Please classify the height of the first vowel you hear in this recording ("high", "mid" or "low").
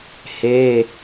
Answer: mid